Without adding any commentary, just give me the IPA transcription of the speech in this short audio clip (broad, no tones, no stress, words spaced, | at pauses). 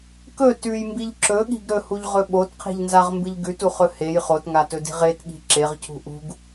kɵ tʉjmbiʎ ǁɵɠi̤ɡ ɾɵhuʎʁɵ ɓotqʰi̤ʎnzaʁmbɨʎ ɡʉtuχɵ hej χotŋatɵdi̤ ʁetɠi̤ ǁeʁcʰṳ ʔṳɡ